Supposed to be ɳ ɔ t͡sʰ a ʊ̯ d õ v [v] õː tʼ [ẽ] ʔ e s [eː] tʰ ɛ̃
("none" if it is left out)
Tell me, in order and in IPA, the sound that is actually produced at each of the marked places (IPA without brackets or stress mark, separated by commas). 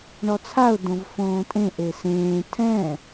f, ẽ, ẽː